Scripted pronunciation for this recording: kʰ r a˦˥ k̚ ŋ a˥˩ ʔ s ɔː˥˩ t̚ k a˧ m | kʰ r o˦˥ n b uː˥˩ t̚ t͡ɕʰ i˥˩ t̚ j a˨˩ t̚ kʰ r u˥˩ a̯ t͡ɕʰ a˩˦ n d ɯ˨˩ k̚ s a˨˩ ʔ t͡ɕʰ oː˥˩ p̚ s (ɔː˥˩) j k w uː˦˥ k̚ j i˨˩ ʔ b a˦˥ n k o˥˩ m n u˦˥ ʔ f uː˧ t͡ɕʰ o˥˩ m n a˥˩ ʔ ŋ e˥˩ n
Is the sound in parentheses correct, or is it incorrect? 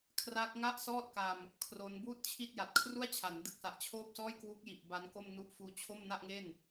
correct